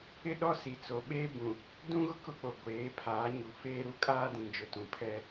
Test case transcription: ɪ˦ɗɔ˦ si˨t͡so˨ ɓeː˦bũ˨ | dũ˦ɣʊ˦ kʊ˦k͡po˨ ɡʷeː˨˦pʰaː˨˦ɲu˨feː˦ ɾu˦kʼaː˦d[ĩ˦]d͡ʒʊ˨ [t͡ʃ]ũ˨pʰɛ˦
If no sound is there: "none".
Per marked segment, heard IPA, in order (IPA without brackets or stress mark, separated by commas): ĩ˨, t